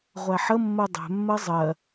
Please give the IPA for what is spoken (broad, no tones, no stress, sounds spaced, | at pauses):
ʁʷ æ ħ ə mː ɜ dˤ ɛ̤ mː ɜ zˤ ɜ